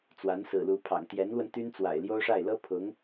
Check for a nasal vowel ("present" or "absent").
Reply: absent